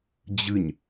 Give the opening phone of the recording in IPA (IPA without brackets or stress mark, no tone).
d͡ʑ